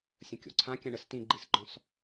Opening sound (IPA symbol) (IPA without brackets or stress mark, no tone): sʲ